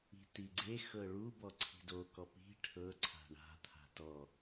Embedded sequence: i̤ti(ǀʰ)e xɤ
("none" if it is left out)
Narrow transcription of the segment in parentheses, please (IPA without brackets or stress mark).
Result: ɡ͡ǀ